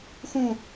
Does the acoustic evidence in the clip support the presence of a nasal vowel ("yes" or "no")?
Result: yes